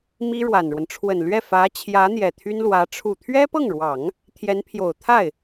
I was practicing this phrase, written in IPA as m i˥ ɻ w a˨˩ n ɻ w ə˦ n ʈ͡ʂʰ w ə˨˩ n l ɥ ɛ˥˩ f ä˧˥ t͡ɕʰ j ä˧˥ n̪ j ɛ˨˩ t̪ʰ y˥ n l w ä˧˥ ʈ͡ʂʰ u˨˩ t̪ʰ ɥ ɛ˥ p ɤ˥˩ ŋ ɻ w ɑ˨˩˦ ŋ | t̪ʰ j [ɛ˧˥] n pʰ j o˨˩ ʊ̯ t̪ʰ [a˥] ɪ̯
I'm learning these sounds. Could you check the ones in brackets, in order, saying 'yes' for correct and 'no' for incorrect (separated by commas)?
yes, no